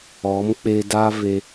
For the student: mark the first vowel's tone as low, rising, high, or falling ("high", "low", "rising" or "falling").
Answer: rising